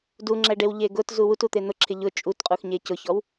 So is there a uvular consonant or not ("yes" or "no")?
yes